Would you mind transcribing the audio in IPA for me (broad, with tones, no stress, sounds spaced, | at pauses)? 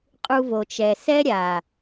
qʼ u˧ v o˨ t͡ʃ ɛ˨ s ɛ˦ ɾʲ a˨